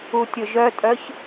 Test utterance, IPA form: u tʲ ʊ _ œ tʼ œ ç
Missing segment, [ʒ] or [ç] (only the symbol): ʒ